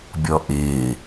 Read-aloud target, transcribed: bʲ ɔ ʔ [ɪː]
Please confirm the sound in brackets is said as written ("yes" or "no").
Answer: yes